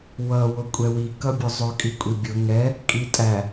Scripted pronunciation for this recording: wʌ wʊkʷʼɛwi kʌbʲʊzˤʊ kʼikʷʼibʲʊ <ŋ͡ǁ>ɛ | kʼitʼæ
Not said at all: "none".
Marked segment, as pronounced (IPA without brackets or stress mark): ŋ